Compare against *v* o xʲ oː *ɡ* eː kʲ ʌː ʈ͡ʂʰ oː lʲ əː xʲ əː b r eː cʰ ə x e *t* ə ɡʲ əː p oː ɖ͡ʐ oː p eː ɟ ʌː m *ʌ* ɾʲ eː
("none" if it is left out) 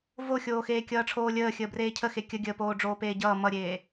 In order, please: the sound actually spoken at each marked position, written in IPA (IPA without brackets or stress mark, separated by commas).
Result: v, x, kʲ, ʌ